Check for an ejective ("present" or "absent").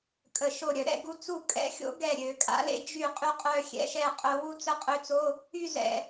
present